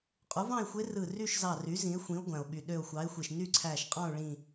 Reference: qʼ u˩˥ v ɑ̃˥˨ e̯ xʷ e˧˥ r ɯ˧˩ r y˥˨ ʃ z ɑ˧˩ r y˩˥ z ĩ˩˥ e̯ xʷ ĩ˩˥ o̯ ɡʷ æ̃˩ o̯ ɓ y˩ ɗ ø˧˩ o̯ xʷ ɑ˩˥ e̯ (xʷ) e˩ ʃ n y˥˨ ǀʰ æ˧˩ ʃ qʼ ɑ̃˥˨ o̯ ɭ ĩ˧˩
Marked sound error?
no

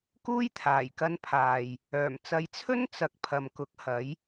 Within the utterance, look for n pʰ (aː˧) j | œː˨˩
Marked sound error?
yes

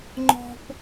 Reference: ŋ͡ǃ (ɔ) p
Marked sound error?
yes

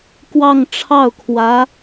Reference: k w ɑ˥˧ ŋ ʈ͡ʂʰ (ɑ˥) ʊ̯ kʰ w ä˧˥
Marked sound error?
yes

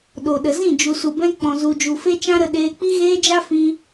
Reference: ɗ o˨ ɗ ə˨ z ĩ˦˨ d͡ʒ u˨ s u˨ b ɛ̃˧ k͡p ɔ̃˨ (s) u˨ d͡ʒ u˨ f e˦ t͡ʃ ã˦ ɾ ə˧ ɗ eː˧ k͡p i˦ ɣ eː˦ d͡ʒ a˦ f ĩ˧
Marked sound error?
yes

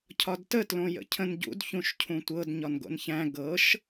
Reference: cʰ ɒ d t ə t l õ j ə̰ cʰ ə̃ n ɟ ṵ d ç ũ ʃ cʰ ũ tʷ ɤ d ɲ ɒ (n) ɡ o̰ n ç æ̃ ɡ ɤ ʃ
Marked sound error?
no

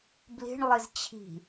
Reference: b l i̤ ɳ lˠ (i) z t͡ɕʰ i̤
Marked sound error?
no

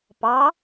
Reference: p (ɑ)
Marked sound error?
no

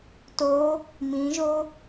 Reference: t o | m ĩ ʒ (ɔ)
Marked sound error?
yes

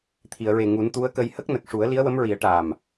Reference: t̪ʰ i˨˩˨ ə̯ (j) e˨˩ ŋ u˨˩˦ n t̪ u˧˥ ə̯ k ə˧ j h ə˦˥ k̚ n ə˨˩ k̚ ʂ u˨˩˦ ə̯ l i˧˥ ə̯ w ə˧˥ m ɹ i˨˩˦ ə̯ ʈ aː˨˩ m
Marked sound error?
yes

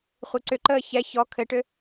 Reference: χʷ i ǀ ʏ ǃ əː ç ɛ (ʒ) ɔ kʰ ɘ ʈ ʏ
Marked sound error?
yes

